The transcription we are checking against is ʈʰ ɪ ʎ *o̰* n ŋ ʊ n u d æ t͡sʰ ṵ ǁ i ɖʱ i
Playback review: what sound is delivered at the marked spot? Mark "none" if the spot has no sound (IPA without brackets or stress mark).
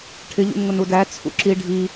ṵ